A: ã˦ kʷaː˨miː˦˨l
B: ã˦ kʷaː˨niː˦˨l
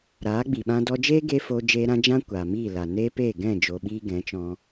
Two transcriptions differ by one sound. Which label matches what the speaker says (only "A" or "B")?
A